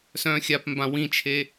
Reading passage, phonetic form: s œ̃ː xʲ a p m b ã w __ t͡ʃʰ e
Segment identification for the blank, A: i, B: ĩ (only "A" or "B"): B